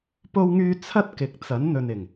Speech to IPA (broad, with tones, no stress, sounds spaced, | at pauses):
p o˧ w ŋ yː˧ t͡sʰ ɐ˥ t̚ k ɪ˨˥ k̚ t͡s ɐ˨˥ n n̪ ɵ˨ n ɪ˨˩ ŋ